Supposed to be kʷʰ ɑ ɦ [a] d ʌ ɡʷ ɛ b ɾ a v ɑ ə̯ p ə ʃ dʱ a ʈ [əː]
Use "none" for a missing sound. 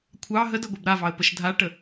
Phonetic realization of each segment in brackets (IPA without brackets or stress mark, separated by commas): ə, ə